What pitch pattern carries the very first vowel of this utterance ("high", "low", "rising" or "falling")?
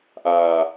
low